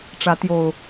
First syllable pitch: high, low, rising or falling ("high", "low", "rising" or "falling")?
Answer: rising